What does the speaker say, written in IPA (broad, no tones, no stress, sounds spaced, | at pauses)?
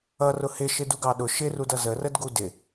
ʌ r ʊ h ɪ ʃ ɪ d u ɡ ɑ ɗ ʊ ʃ ɪ r u d ʌ z ə r ə d ɡ u d ɪ